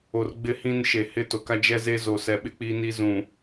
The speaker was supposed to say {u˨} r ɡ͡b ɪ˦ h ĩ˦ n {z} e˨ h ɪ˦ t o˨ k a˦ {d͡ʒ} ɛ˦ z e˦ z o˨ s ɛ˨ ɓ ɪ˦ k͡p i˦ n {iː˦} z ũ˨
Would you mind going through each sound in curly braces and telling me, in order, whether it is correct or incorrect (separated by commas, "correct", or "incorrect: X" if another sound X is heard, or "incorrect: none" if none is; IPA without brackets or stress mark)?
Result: incorrect: o˨, incorrect: ʃ, correct, incorrect: i˦